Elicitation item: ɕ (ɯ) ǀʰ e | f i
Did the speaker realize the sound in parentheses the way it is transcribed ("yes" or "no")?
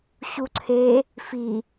no